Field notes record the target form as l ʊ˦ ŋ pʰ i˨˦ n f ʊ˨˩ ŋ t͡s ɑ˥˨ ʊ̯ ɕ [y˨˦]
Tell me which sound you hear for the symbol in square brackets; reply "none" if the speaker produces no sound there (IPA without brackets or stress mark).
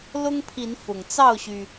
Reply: y˩